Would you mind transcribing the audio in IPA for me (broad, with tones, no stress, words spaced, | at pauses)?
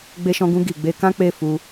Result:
ɡ͡be˧ʃɔ̃˧ɡũ˧ ɡi˨ ɡ͡be˧kã˦ k͡pe˦˨fu˧